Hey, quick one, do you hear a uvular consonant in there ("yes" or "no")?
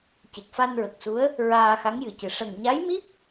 no